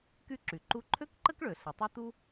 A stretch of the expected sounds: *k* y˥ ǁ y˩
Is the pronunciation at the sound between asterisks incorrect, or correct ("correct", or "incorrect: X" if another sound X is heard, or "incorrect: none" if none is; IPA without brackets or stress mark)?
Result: correct